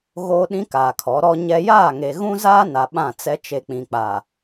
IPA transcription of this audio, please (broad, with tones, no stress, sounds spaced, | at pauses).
ɣ oː˦ ɗ ĩ˦ k aː˨ kʰ ɔ˨˦ ɾ ɔ˦ ɲ ɛ˦ j aː˦˨ ŋ e˨ ɣ ũ˦ z aː˦ n a˨ ɓ ã˦˨ t͡s ɛ˦ t͡ʃ e˨ k͡p ĩ˨ k͡p a˨